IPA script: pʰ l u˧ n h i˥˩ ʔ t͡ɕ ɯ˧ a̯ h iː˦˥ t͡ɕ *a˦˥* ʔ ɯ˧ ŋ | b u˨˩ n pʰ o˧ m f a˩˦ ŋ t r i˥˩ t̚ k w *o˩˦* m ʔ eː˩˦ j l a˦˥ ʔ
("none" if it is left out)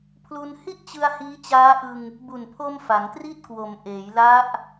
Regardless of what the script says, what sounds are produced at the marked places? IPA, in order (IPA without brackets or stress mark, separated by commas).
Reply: aː˦˥, o˩˦